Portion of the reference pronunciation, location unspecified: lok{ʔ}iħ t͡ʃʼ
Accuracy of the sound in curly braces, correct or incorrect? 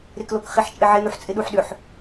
incorrect